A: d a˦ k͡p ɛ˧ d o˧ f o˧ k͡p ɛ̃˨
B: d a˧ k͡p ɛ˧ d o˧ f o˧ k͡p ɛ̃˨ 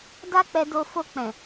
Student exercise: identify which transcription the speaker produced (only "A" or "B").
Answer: A